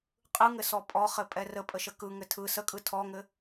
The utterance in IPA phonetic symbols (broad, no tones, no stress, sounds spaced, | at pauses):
qʼ ɯ ŋ ɘ s ɔ pʼ ɔ χ ɘ pʼ ɛ r ə pʼ ə ʃ ə k ɯ ŋ ɘ tʰ ɯ s ə kʼ ɯ tʰ ɔ ŋ ɘ